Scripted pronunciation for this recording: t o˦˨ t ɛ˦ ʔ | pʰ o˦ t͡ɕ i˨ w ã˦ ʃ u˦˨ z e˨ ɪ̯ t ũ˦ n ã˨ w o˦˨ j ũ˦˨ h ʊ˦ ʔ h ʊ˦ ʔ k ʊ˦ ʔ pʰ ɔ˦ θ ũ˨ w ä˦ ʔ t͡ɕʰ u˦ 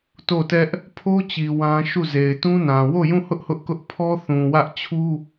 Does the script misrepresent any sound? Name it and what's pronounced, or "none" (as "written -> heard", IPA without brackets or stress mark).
none